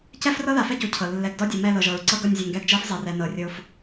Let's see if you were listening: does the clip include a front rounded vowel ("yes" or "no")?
no